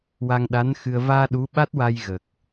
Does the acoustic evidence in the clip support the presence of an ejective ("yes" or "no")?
no